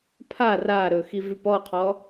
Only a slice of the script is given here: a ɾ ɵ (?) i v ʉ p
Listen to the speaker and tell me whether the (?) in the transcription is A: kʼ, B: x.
B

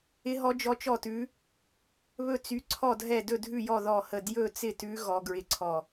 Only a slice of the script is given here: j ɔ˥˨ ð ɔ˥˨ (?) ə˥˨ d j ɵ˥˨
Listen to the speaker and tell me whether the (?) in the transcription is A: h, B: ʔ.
A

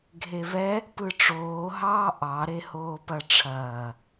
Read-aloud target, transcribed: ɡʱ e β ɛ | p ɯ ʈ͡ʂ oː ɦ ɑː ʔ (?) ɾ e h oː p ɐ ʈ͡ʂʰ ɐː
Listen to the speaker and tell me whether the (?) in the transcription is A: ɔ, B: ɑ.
B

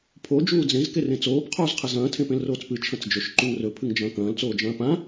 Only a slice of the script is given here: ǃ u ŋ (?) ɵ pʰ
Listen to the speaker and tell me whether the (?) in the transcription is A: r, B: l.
A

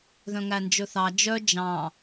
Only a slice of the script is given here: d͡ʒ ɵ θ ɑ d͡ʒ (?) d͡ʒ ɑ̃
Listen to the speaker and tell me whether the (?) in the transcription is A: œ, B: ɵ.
A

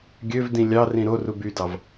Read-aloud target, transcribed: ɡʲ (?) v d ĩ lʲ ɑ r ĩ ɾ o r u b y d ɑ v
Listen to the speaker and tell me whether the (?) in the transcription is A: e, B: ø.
B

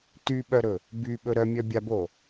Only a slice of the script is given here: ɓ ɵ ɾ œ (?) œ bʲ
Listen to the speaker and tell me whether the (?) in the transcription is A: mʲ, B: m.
A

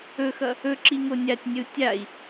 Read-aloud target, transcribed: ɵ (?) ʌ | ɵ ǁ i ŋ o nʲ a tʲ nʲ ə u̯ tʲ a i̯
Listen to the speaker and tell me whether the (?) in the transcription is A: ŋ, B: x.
B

